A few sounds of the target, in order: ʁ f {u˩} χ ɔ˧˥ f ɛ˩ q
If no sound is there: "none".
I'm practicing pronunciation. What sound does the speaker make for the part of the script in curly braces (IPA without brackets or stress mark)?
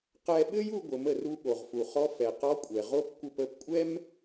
u˩